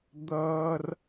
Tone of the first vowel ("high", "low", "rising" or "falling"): high